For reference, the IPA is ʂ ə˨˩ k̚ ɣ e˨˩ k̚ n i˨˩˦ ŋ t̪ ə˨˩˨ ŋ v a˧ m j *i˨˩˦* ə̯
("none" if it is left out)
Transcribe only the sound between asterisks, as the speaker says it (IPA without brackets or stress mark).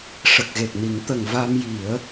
i˨˩˦